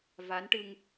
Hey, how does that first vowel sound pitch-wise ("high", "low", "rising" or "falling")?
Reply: rising